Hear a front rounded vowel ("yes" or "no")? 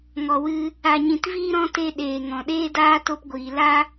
no